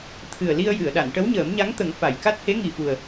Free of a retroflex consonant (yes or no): no